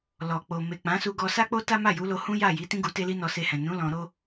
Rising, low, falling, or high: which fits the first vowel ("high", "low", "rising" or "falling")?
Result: low